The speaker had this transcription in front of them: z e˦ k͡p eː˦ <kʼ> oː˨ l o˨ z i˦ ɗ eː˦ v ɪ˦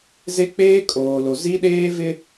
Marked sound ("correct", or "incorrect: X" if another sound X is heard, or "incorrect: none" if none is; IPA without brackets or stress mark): correct